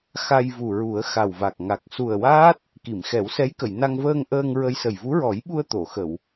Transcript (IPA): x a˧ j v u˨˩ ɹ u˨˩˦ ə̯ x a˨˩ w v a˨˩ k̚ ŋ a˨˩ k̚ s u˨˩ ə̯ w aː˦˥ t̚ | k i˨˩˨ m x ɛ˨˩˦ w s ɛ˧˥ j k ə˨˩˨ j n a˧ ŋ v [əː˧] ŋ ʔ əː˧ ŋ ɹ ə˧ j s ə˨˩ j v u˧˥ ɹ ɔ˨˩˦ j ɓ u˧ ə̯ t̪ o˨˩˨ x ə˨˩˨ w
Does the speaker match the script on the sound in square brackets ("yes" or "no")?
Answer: yes